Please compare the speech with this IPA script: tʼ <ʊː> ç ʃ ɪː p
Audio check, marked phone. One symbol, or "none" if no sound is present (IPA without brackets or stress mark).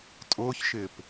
ʊː